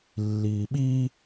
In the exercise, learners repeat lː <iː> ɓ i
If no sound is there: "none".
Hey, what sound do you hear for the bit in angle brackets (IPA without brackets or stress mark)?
iː